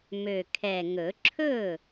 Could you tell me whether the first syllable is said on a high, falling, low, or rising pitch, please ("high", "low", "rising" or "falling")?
low